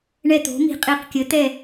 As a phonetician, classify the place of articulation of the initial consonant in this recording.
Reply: retroflex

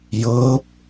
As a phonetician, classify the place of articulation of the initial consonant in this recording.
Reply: palatal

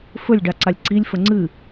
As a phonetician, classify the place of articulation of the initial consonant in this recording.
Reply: labial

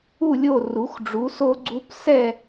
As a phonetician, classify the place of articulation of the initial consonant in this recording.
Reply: alveolar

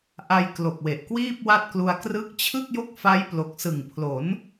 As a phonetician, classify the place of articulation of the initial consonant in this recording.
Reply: glottal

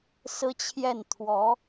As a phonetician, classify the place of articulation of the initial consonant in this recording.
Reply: alveolar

